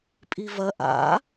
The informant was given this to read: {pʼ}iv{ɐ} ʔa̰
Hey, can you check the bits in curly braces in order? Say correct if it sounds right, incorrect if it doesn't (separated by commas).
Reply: correct, correct